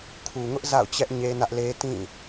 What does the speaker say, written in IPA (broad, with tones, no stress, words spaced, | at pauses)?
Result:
kʰu˨ŋʊ˦ʔ za̰˦˨ʊ̯t͡ɕɛ˦ʔ ɲe˦nä˦ʔle˦ tĩ˦˨